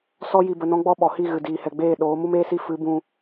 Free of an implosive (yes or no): no